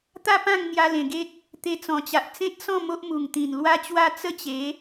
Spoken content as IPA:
t̪a˦pã˥˧ŋ n̪ja˧lẽ˨˩ɡe˦t̚ | t̪e˧t͡sɔ̃˨˩t͡ɕa˨ʔ t͡sẽ˦t̚sɔ̃˥˧ mo˦ʔ mu˨˩ŋt̪ĩ˨˩nlwa˦t͡ɕwa˥˧ t͡sə˥˧t͡ɕe˨˦

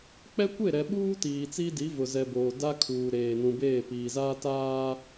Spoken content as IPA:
k͡pɛ˦kʷe˦˨ ɾɛ˨ɓuː˦ tiː˨t͡si˦di˨˦ vʊ˨zɛ˨ boː˨ da˦kʰuː˨ɾeː˨ nũ˨beː˦˨piː˨zaː˦ taː˦

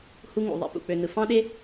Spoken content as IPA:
hu˧ŋṵ˨ ðˤḛ˧ pṵ˧k͡pø˧ nɯ˨fɑ̃˦ɗe˦

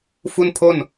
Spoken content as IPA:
fu˥˩npʰo˥˩n

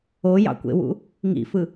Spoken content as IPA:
ojɑ̰kʷḛwṵ | ŋḭfɯ

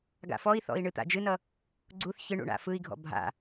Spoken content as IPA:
ɡa̰fɔi̯θɔ̰i̯ ɳɨt̪a̰d͡ʒɨnʌ | ɡ͡ǀuθ çɨ ɳṵɳa̰fɯi̯ɡʱɔ̰ bʱa̰

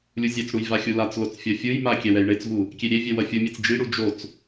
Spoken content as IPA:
lʲuzʲɛt͡sɽuj vaxʲulat͡slot͡s fʲʌfʲɯjma kʲɛwɛjɳet͡svu | kʲeɾʲevʲɛ wʌfʲumʲet͡s d͡ʒiɽu d͡ʒot͡s

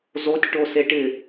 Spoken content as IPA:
zotʲ ʈoseʈɪ

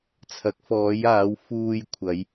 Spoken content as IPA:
t͡sʰɐ˨˥k̚ fɔː˨˧jaː˨˧w fuː˨j kʷʰɐ˨˧j

